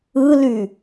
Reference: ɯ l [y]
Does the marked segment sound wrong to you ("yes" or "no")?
no